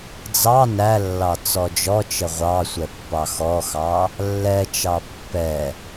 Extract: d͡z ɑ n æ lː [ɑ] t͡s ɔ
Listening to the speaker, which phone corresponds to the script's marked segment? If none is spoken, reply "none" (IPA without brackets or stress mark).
ɑ